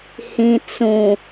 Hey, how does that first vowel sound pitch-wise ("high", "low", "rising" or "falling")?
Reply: low